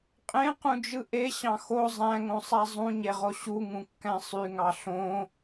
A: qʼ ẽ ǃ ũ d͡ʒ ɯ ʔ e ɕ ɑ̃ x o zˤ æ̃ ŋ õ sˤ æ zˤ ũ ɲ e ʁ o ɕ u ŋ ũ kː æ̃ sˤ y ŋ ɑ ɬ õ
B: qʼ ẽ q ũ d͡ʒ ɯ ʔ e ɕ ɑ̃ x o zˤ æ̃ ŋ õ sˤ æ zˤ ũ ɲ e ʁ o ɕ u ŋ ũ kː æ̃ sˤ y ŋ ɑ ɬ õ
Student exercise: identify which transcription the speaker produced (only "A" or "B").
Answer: B